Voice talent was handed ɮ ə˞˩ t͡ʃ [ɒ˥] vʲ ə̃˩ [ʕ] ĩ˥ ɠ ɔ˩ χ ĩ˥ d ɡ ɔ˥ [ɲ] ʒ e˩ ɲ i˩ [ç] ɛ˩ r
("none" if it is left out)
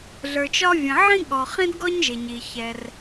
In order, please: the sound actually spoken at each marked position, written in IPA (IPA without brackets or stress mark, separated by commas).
ɒ˥, ʕ, ɲ, ç